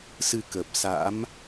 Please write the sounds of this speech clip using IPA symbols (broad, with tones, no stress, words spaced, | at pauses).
sɨ˧kə˨˩p̚ sa̰˧˥m